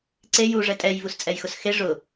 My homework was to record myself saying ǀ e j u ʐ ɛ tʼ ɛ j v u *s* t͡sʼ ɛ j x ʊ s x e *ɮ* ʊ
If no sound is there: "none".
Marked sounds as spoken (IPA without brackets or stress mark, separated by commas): s, ʐ